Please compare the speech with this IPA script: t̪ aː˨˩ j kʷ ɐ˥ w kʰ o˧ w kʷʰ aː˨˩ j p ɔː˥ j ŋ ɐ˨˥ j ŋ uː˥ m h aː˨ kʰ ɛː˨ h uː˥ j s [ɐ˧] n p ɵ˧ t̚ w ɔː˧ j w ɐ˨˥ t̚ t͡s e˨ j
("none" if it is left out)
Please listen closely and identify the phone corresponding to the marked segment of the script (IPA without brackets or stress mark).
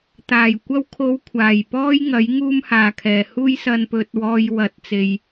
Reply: ɐ˧